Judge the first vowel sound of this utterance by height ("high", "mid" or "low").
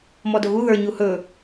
mid